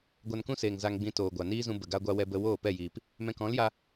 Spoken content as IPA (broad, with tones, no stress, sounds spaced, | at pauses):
ɡʷ a˧ n k ũ˦ s eː˨ ŋ z a˧ ŋ ɡ͡b ĩ˧ t oː˨ ɡʷ a˨ n iː˦ z ũ˧ b ə˨ ɡ a˦ ɡʷ a˦ w ɛ˦ b ə˦ w oː˦˨ p ɛ˦˨ j iː˨ p | m ɛ̃˧ k ɔ̃˨˦ l j a˧